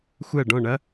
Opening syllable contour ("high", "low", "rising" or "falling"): falling